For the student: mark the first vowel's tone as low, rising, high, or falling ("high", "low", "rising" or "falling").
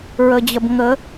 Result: low